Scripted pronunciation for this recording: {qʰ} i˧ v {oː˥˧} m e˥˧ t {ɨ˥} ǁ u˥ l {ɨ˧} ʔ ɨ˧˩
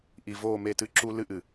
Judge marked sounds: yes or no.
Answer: no, yes, no, no

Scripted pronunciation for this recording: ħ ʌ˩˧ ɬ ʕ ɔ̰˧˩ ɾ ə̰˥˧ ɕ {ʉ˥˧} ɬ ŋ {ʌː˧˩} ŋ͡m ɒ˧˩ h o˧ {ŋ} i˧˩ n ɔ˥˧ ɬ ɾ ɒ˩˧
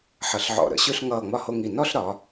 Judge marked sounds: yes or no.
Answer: yes, yes, yes

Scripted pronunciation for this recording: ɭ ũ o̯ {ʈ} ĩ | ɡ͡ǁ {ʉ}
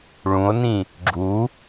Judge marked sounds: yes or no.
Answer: no, no

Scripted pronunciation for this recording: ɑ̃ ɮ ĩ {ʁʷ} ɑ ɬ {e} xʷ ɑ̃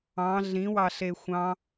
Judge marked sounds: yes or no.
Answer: no, yes

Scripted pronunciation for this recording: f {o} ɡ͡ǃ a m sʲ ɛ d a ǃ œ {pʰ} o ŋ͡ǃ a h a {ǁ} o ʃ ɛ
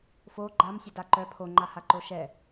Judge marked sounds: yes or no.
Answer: yes, yes, no

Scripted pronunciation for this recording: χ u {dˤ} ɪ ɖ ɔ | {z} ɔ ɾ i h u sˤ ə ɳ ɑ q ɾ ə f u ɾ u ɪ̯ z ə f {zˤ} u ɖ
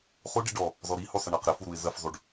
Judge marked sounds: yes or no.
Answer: no, yes, yes

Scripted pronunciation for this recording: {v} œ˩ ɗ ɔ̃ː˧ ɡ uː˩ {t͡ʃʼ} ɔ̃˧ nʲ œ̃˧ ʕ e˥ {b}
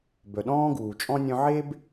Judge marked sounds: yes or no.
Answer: no, yes, yes

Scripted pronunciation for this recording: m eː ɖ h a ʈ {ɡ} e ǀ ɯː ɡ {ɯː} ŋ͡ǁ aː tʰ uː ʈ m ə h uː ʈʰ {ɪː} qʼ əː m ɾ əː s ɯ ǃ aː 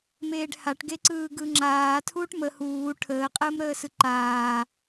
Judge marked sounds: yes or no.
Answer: yes, no, no

